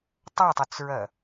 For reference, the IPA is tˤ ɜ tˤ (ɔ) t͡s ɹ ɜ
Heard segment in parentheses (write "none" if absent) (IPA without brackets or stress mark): ʊ